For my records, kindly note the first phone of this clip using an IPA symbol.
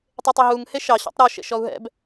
tˤ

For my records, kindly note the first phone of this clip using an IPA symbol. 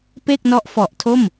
p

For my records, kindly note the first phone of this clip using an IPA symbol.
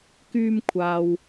k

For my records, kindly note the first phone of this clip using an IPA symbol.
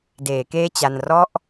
d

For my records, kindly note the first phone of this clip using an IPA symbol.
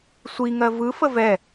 sʷ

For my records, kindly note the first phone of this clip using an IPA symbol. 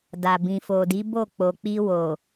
d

